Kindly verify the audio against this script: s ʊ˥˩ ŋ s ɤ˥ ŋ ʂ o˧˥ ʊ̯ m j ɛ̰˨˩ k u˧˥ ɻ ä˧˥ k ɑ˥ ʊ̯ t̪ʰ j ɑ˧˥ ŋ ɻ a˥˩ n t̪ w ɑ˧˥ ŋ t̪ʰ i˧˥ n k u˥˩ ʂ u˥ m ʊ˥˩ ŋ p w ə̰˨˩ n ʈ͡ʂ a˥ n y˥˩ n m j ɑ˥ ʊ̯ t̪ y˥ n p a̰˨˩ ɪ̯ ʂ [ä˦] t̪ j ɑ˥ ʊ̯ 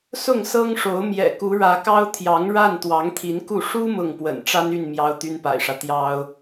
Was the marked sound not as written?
no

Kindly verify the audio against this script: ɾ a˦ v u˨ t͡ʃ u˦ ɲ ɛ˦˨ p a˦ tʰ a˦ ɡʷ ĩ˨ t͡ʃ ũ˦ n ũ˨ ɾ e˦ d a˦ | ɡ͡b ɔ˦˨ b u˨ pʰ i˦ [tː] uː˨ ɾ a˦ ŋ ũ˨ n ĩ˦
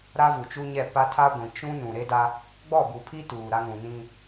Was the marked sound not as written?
yes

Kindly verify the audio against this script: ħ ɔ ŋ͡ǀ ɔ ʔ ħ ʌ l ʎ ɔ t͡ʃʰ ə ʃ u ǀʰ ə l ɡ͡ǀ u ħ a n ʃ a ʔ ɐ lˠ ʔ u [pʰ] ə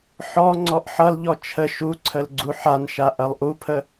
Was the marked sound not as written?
no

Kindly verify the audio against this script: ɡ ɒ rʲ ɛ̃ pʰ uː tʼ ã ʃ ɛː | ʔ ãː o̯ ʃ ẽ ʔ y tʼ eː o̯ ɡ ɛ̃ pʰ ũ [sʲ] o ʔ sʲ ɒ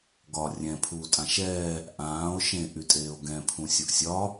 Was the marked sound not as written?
no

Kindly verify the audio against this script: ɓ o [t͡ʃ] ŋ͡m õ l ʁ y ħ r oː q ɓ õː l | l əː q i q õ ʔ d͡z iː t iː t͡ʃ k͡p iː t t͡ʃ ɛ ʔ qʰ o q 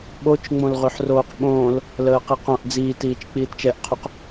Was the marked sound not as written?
no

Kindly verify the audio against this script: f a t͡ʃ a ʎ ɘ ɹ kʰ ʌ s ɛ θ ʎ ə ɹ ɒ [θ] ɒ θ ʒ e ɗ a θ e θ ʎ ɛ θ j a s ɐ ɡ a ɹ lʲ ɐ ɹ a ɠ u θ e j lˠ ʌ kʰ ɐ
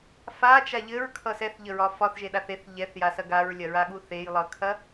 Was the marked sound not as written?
yes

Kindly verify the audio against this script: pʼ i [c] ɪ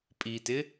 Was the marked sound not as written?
yes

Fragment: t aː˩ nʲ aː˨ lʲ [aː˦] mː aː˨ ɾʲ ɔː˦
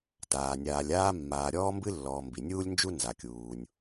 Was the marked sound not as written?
no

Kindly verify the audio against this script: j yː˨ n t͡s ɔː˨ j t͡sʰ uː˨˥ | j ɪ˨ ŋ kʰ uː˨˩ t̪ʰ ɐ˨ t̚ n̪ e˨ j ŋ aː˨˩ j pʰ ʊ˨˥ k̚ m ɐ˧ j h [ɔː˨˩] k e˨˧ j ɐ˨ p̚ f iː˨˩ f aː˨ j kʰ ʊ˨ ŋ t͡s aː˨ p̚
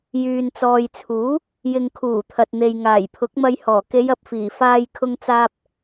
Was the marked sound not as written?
no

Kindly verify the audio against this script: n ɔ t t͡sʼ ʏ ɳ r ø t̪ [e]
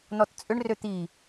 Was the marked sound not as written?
yes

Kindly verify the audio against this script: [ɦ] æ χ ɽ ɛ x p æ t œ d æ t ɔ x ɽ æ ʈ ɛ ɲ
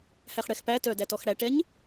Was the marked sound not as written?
yes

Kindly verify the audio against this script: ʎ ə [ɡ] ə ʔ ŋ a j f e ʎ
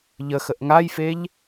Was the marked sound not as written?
yes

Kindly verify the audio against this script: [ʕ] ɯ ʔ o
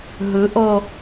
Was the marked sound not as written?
yes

